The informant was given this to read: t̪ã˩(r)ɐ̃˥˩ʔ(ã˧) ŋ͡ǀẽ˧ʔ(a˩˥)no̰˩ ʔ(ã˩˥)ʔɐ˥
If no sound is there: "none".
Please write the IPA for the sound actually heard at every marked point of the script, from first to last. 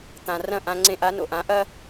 r, ã˧, a˩˥, ã˩˥

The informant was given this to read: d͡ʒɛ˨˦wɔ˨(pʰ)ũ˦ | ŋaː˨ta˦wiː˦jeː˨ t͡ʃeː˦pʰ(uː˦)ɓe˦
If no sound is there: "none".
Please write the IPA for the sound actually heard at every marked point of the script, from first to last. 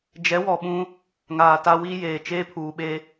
ɓ, uː˨

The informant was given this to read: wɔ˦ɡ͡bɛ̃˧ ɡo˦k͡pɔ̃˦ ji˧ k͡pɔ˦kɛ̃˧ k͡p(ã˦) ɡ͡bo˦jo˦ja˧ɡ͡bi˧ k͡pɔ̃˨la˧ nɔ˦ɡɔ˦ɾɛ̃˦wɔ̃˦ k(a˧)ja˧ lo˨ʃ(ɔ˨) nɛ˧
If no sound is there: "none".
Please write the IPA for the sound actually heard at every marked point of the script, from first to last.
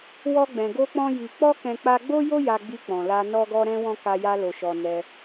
a˦, a˧, ɔ˨

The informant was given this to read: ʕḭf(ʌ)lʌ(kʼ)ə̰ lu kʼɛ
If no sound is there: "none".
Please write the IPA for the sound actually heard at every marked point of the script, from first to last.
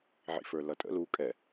ə˞, tʼ

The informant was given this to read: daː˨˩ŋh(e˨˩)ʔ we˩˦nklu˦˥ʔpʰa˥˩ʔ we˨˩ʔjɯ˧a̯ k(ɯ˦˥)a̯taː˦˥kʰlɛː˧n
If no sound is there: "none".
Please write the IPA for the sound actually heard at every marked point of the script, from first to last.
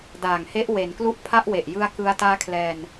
e˦˥, ɯ˧

